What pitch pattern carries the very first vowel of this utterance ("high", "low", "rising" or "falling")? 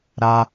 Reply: high